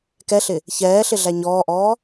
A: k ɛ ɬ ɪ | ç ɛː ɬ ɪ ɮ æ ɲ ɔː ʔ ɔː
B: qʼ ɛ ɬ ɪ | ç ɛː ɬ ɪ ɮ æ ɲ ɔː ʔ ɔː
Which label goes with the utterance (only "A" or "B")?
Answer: A